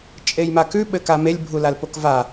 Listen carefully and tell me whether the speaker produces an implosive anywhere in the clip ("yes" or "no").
yes